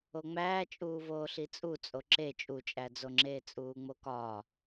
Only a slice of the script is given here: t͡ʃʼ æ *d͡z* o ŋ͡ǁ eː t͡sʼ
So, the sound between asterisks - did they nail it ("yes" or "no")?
yes